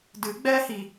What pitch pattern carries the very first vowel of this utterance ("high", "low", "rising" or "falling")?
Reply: rising